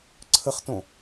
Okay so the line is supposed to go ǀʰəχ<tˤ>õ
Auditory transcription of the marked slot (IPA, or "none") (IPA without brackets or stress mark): t